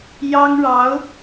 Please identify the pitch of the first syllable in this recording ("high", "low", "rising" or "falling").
high